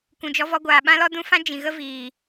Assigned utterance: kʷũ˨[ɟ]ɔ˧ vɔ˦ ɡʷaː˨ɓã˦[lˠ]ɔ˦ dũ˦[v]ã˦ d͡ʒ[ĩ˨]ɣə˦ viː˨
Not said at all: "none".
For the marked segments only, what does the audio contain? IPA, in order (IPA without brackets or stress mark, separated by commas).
d͡ʒ, l, f, ĩ˨